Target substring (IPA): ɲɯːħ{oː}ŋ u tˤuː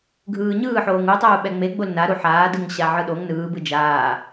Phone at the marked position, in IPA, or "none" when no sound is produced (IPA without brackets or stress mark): oː